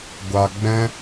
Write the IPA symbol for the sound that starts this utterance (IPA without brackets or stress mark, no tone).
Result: ɡʷ